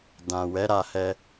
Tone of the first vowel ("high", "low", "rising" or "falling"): low